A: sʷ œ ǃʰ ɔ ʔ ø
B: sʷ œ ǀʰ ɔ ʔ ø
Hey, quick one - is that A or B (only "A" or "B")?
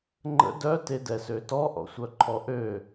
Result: A